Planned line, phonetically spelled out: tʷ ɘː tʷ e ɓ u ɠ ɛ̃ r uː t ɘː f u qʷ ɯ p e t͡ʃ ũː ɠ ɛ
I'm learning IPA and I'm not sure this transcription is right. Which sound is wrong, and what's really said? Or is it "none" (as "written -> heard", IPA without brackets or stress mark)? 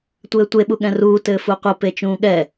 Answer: none